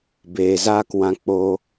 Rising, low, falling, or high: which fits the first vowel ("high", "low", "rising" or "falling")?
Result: low